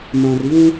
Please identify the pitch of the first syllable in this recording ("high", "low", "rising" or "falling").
low